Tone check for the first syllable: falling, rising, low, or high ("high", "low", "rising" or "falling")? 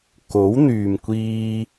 rising